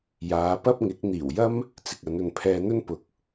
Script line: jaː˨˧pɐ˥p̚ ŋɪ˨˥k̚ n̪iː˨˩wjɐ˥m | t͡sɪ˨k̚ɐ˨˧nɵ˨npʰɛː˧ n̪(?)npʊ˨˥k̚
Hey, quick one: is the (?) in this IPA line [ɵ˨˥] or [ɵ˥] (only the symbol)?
ɵ˥